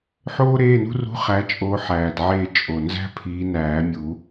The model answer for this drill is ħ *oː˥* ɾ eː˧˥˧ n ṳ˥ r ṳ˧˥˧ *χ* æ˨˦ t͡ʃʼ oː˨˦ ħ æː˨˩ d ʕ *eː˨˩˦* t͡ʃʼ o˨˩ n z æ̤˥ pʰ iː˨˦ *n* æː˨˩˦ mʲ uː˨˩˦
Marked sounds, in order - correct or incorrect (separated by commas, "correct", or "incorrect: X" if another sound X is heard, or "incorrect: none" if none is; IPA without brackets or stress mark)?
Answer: correct, correct, incorrect: eː˦˨, correct